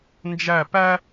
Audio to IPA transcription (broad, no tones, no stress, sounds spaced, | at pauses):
n d͡ʒ æ p æ